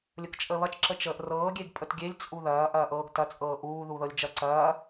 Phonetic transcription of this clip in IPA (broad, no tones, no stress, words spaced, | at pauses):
lʲəkt͡ʃʼəːβɐt͡ʃ ǁət͡ʃəːʔrɤː ɡʲeɡpʼətɡʲelʲ t͡sʼuðɐː ʔɐːʔɤːɡtɐ t͡sʼɤːʔuː ðuðɤlʲd͡ʒɐǀɐː